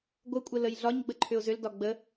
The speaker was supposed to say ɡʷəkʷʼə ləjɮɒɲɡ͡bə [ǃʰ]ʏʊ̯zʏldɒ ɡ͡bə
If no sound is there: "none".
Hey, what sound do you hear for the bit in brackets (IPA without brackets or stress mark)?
ǃʰ